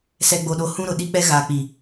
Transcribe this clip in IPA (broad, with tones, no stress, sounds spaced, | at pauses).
s ɛ˨ ɡ͡b o˨ ɗ o˨˦ h ũ˦ ɾ ʊ˨ ɗ i˦ k͡p ɛ˦ ɣ aː˨ k͡p iː˨